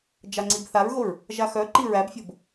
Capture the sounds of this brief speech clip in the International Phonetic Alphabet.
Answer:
d͡ʒaŋ͡ǀibθaɹɣoɹ | ʒaxœǃi ɹæbfʲob

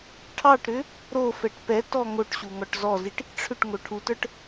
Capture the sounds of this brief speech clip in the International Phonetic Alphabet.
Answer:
ʈʰɑʈɾʏ | ɾofɛʈ pɛtɔ ŋoʈɕu ŋɔʈzɔziʈ | ʈ͡ʂʰʏʈ ŋoʈʰutə˞ʈ

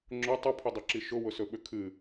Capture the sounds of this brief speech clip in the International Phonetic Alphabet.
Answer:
ŋ͡ǁʊ tˤʊpʰʏdˤʊǁi ʃʊwʊsɵɓʏ kʰɨ

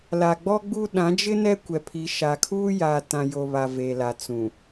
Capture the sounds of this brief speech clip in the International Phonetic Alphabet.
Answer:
la˨ɡ͡bɔ˦ɡ͡bu˦ ɗã˨˦d͡ʒɪ˦ nɛ˦kʷɛ˨pʰi˨˦ ʃa˨kʰuː˦jaː˨ tã˨ jo˨βa˨ veː˨la˨ t͡sũ˨

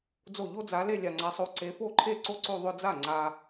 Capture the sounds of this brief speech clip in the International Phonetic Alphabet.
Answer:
d͡zo˥˩ ʎo˥d͡za˨˦le˥˧ lʲa˨ŋ͡ǀa˨˦sˤo˨˦ ǀe˨˦fo˥˩ǃʰe˥˩ ǀo˥ǀo˥˧ ðˤʊ˥˧d͡za˥˩ ŋ͡ǀa˨

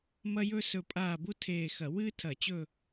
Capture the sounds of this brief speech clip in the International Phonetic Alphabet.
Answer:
mɐ˥ jɵ˥ sɵ˦˨pʼaː˦˨ bu˥tʰeː˦˨xɐ˧˩˧ wɨː˥tʰɐ˧˩˧t͡ɕɵ˦˨

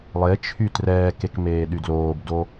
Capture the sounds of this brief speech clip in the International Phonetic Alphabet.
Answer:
lˠet͡ʃʰy trɛːkek meːɗydloːbdo

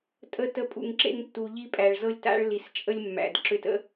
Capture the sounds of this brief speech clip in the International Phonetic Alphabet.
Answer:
tʼə˧tə˨˦pʼṵ˨ŋ ǁḛ˦ŋtːu˨ʎi˦ pʼæ˨ɭzɤ˦lʲ ta̰˦ɭli˨st͡ʃʼə˦lʲ mːæ̰˨d ǁø˧tə̰˦

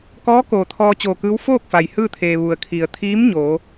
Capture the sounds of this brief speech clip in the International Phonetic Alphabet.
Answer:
kɔː˧˥koː˩ t̪ʰɔː˧ t͡ɕoː˧˩kɯː˧˥w foː˥˨k̚fa˩j hɯː˥˨t̪ʰeː˩ ʋu˩ə̯kʰi˩ə̯t̪ʰiː˧˥m ɲoː˩˧

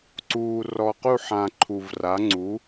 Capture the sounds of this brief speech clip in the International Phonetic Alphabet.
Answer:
ǀuː˨ rɔ˨qu˥˨ħã˨ ǃʰu˨v ra˩˥ŋ͡ǀu˩˥

